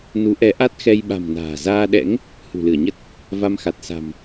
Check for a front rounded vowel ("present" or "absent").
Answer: absent